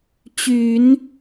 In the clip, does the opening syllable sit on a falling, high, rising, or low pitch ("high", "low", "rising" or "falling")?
low